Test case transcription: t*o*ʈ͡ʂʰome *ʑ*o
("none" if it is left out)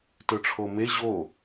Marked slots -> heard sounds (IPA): ɵ, ʑ

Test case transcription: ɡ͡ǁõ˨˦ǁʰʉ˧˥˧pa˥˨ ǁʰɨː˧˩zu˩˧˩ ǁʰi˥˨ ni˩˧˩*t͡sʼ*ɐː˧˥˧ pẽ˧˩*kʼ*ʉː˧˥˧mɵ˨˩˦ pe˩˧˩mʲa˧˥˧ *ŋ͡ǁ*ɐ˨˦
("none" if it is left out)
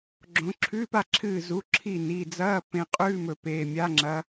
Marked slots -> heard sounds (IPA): d͡z, qʼ, ŋ͡ǁ

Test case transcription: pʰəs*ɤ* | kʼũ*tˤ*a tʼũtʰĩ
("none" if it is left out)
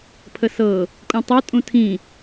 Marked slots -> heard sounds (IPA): ɤ, tˤ

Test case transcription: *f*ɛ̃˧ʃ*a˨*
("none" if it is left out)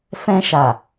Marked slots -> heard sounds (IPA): f, a˨

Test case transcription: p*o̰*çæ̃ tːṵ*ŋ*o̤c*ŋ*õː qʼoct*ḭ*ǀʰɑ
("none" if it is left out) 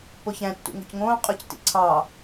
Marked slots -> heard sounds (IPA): o, ŋ, ŋ, ḭ

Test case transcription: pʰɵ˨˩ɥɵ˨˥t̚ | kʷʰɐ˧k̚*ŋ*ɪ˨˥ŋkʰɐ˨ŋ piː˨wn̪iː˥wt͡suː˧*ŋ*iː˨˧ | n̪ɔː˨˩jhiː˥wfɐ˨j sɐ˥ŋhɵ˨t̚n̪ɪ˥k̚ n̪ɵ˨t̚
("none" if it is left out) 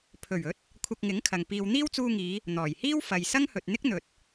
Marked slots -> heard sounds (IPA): ŋ, ŋ

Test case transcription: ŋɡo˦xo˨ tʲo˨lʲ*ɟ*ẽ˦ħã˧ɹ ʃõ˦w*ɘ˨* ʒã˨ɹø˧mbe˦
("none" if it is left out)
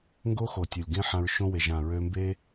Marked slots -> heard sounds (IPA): ɡ, e˨

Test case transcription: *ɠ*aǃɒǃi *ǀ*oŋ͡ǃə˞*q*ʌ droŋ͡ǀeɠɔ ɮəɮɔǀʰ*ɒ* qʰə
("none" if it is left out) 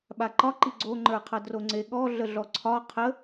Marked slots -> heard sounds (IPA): ɓ, ɡ͡ǀ, qʰ, ɒ

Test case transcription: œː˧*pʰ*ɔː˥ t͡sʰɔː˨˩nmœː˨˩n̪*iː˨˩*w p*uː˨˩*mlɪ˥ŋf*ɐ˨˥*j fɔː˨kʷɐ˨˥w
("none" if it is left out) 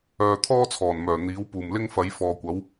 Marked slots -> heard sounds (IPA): t̪ʰ, iː˨˥, uː˨˩, ɐ˨˧

